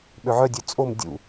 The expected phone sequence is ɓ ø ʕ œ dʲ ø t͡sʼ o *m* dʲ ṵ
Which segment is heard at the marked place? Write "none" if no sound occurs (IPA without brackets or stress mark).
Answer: m